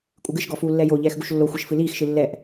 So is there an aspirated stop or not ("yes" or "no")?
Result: no